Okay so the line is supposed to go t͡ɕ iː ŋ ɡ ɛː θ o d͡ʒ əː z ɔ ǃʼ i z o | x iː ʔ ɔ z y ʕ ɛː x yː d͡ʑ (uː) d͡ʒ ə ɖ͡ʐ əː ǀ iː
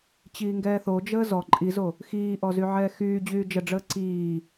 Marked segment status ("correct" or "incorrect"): incorrect